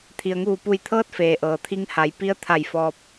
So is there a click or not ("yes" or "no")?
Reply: no